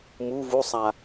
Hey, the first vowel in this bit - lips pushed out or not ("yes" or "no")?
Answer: yes